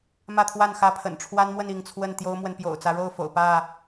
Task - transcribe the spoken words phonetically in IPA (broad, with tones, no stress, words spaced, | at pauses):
mä˥˨t̪ʰwa˥˨nxä˦pʰə̰˨˩n ʈ͡ʂʰwa˦nmwə˥˨n i˥˨ŋt͡sʰwə˥˨n t̪jo˦ʊ̯mwə˨n pjo̰˨˩ʊ̯t͡sä˨˦ɻo˥˨ʊ̯fo̰˨˩ʊ̯ pä˥˨